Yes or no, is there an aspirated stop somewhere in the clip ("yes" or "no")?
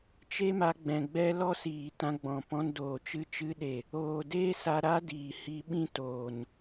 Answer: no